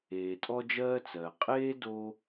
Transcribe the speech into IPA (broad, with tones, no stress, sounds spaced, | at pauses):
eː˩ tʼ ɔ˧ d͡ʒ ɜː˧ t͡s ɜː˩ qʼ eː˥ d o˧